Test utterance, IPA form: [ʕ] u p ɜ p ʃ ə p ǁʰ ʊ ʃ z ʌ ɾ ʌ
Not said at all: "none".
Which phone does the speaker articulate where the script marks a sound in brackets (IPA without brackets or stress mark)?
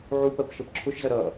ʕ